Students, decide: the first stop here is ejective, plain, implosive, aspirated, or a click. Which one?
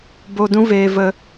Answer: plain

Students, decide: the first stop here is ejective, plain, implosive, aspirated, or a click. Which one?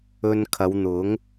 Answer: aspirated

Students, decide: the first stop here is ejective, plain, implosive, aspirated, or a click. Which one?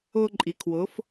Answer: click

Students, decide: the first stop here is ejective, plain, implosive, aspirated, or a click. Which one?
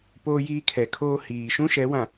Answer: plain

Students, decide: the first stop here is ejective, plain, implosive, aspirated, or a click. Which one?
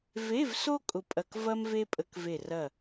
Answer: ejective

